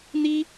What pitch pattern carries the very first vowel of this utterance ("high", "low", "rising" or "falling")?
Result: high